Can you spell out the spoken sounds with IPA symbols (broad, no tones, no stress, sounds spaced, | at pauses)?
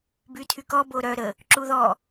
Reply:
b y tʰ y k ɔ b o ɾ œ ɾ ə | ǁ u ð ɔ